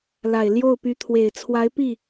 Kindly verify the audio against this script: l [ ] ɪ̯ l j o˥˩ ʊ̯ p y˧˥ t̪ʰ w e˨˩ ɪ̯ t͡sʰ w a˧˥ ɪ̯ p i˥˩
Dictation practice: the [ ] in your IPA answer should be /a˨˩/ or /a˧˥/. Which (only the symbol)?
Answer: a˨˩